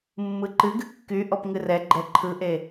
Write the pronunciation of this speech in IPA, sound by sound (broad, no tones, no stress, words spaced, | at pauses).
mːɯǃɨɡɨ kːy ʔɔpŋɨrɛɡ͡ǃɛ ǃʰɯʔe